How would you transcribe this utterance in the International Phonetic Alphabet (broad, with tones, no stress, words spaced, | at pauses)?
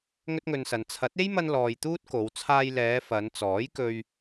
ŋɵ˥t̚ŋɵ˧nsɐ˨n t͡sʰɐ˨˥t̚e˥j mɐ˧nlɔː˨j t̪uː˥t̚ko˨˧w t͡sʰaː˧jlɛː˨˧ fɐ˨˧nt͡sɔː˨˥j kɵ˧ɥ